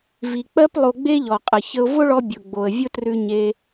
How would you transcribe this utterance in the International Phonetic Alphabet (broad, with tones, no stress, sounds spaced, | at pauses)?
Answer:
v i˩ k͡p ɜ˥ p lˠ o˧ ɡ͡b e˥ ʎ ɔ˩ qʼ ə˩ ç ə˧ ʊ̯ v ʊ˥ ɭ ɔ˧ bʲ ʊ˩ ɡ͡b o˩ ə̯ vʲ ʊ˥ t r ʉ˧ ɲ e˧